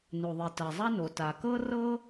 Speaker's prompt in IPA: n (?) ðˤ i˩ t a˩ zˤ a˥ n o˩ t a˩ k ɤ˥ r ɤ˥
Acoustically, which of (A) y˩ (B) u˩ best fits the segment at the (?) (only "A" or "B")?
B